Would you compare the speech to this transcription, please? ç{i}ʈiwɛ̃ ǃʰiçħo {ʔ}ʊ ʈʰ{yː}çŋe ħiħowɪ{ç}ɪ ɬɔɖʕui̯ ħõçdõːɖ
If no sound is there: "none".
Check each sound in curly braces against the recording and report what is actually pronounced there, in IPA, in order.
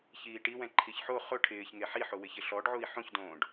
iː, χ, ɪː, ç

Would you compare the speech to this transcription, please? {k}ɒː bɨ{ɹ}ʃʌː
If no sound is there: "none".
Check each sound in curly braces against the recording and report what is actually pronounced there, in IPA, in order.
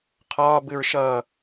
qʰ, ɹ

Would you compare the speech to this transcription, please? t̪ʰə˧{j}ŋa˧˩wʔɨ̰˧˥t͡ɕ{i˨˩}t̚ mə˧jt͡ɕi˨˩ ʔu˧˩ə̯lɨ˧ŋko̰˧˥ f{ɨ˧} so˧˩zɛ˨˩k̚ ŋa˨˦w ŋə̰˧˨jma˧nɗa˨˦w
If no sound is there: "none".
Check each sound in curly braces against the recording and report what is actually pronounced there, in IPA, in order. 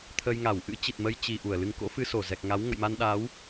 j, i˨˩, ɨ˧

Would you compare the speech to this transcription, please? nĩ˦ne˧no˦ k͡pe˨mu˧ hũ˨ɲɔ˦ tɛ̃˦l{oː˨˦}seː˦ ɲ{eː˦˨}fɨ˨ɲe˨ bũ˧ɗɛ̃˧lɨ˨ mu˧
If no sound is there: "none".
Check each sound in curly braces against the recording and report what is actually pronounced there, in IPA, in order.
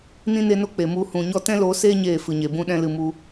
oː˨˦, eː˦˨

